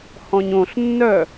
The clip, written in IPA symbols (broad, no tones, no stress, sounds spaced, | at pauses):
h ɔ̃ ɲ õ ɬ nː œ